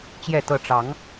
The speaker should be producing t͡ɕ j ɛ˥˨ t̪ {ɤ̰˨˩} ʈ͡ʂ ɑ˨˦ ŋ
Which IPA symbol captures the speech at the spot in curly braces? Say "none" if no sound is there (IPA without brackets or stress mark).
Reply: ɤ˥˨